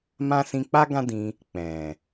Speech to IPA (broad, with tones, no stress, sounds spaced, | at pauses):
m ã˦ s ĩ˧ k͡p a˦ ɡ ã˦ d ĩ˧ | k͡p ɛ̃˨